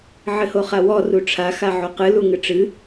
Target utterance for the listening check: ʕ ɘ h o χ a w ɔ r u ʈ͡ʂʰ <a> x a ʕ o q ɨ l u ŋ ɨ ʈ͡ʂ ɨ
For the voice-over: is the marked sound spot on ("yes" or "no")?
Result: yes